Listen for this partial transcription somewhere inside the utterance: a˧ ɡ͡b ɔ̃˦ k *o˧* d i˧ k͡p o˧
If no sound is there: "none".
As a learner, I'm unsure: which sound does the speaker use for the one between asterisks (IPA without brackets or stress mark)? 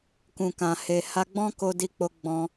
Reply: o˧